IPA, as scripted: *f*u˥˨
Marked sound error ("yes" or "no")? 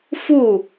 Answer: no